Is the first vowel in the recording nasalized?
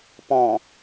yes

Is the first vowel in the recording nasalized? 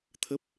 no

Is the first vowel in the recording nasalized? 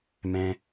yes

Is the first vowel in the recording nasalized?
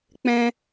yes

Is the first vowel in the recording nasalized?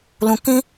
yes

